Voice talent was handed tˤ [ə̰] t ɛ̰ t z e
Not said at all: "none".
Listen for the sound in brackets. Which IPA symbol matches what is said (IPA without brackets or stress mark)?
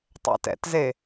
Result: ɛ̰